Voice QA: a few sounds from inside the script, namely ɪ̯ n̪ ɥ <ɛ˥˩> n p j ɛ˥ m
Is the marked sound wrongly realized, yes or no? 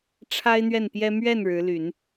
no